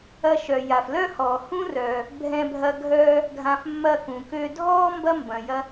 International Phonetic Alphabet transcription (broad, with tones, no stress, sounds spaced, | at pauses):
ɐ˧ ʃ œ˩ j a˩ f l œ˥ h ɔː˩ h ũ˥ r œː˩ | bʱ ɛ̃˧ bʱ ɐ˧ ɡʱ œː˧ | ɡʱ ã˧ f mː ɐ˧ k ũ˩ k ø˧ dʱ ɔː˥ m b ɐ˥ m b ɐ̃˩ j ɐ˧